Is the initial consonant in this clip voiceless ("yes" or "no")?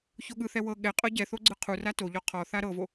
yes